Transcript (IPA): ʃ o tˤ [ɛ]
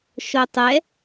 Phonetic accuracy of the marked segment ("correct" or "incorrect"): correct